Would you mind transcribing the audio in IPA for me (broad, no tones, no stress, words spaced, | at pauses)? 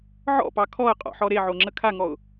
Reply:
ʕɔ̰pɑ kʰɔə̯qʼɔ̰ħɔ ɾeʕoŋ͡ǁə kʰaŋɔʊ̯